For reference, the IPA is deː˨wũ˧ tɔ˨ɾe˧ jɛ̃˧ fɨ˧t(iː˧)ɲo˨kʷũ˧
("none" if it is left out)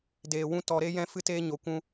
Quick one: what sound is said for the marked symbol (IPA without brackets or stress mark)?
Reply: eː˧